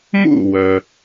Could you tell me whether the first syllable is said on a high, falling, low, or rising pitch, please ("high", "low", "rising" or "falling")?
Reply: falling